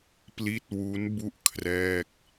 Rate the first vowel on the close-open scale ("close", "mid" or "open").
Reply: close